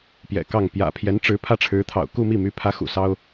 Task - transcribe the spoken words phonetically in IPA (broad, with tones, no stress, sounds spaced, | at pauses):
p j ɛ̰˨˩ k ɑ˥˩ ŋ p j ä̰˨˩ pʰ j ɛ˧˥ n ʈ͡ʂ ɻ̩˧˥ pʰ ä˥˩ ʈ͡ʂʰ ɻ̩˧˥ t̪ʰ ɑ̰˨˩ ʊ̯ k u˥˧ m i˥˩ m y˧˥ pʰ ä˧˥ x ṵ˨˩ s ɑ˥ ʊ̯